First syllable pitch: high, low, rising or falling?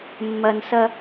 low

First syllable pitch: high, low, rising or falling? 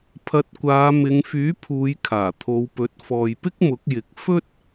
rising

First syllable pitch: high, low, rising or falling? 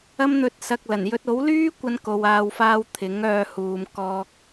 high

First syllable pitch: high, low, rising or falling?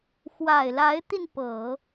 low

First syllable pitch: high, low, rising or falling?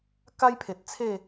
high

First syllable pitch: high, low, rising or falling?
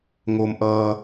low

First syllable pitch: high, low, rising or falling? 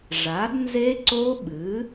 rising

